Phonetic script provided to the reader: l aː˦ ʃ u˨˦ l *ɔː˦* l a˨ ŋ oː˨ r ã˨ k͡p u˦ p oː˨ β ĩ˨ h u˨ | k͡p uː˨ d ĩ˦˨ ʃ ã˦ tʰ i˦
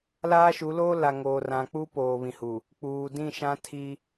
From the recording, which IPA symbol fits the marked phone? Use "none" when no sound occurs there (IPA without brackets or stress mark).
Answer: oː˦